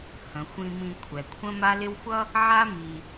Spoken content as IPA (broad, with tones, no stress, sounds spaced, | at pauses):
h ə̃˩ xʷ ĩ˨ m ĩ˨ kʷʰ ɛ˩ kʷʰ ə̃˦ m a˦ l ɪ˦ w xʷ ʌ˥ | ʕ a˦ m i˨